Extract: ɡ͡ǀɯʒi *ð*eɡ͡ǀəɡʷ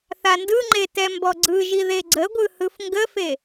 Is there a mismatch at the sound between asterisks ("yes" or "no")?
no